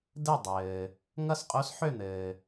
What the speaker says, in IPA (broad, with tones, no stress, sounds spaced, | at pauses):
d ɘ˦˨ dˤ ɘː˩ | ŋ ʌ˦˨ s qʼ o˧˥ s ħ ø˦˨ n̪ ɘː˩